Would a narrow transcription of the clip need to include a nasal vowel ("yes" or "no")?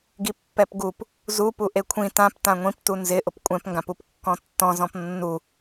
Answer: yes